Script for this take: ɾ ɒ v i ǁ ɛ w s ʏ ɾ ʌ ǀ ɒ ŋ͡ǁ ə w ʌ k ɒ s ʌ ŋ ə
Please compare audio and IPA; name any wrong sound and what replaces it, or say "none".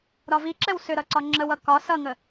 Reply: none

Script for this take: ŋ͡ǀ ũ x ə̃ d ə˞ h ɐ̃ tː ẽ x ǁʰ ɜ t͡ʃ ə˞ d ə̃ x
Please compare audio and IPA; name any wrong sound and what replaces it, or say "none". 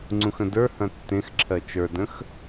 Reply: none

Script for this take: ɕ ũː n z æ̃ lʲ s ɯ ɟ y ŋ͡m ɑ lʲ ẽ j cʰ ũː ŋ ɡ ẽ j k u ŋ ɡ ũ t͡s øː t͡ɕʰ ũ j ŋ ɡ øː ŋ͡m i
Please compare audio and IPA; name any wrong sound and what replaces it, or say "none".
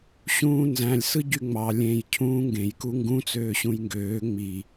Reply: t͡ɕʰ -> ɕ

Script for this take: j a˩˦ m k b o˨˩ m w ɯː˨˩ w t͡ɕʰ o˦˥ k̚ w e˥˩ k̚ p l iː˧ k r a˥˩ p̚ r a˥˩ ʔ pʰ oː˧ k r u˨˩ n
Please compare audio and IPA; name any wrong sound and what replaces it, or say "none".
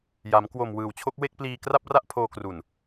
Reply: b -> w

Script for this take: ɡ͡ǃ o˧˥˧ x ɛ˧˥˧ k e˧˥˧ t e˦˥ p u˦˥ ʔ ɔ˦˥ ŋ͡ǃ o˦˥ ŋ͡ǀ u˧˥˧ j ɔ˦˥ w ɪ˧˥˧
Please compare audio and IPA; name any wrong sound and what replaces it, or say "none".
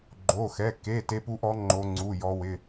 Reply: none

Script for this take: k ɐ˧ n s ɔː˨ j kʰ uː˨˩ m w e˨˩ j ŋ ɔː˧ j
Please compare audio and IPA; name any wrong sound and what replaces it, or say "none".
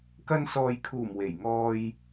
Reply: none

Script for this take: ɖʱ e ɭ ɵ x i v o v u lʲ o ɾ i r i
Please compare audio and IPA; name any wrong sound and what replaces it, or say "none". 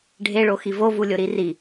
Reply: ɵ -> o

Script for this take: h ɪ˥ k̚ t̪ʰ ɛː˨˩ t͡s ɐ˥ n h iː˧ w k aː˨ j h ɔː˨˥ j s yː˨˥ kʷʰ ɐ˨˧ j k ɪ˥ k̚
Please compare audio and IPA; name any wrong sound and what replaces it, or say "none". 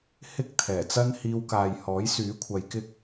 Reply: none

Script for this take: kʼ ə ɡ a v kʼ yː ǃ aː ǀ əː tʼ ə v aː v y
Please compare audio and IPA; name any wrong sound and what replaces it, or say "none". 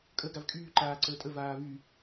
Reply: none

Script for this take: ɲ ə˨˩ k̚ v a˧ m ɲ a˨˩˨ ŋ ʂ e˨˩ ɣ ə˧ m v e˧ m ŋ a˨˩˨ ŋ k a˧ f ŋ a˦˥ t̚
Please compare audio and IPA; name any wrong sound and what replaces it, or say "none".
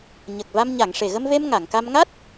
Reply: f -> m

